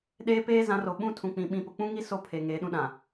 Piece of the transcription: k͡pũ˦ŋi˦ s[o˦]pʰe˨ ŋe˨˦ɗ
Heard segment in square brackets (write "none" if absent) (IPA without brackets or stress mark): o˦